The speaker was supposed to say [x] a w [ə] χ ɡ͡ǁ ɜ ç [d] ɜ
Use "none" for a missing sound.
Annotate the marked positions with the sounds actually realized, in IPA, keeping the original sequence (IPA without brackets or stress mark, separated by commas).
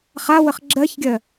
χ, ə, ɡʲ